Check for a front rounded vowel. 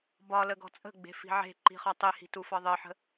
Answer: absent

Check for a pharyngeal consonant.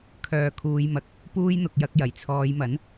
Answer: absent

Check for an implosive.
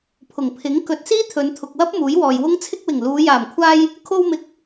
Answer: absent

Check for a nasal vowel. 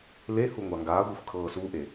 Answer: absent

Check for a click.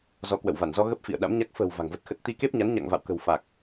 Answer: absent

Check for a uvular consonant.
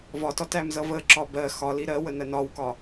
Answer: absent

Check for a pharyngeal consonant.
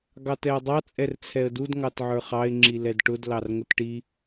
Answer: present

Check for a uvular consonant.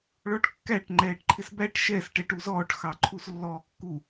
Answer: absent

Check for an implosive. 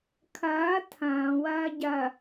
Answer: absent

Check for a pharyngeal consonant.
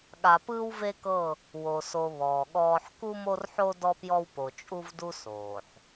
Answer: present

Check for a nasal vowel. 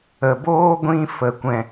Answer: present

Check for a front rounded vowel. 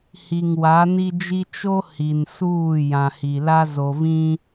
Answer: absent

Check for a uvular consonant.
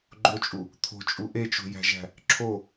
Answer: absent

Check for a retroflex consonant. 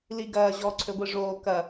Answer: present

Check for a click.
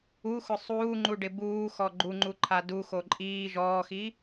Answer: present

